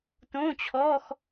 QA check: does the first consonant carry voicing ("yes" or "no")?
no